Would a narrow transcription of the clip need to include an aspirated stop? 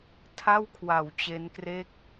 yes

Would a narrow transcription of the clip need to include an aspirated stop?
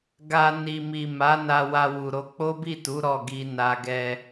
no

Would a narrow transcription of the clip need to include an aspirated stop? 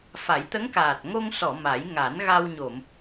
no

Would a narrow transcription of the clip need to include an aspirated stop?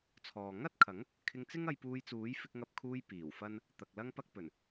yes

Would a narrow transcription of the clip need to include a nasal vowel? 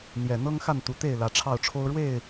no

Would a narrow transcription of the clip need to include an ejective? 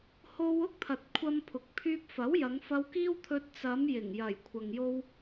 no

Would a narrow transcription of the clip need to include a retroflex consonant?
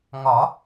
no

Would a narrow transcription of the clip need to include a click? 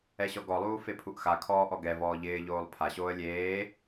no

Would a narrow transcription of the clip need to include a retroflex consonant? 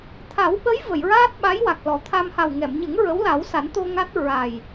no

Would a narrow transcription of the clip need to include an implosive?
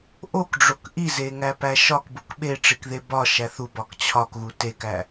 yes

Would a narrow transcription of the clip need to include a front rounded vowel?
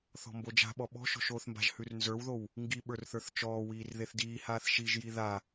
no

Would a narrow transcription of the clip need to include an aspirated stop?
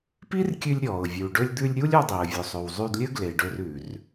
no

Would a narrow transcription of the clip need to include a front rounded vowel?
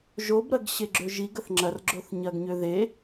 yes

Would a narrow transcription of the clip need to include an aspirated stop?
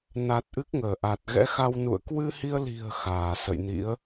no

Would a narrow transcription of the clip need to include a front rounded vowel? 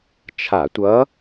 no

